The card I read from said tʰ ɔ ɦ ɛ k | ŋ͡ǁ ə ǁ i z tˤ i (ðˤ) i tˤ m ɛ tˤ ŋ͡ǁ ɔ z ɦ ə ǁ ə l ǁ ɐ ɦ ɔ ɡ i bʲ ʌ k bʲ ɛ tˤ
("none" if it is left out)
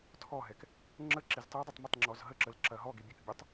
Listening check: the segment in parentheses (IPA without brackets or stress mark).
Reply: dˤ